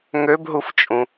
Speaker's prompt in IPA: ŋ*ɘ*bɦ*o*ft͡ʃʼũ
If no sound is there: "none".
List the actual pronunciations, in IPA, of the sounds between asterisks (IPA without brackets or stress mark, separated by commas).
ø, u